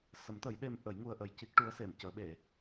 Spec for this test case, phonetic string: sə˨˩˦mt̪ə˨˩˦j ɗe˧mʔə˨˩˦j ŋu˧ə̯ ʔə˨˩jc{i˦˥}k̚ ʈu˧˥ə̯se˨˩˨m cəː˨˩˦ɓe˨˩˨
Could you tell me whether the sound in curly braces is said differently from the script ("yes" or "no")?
no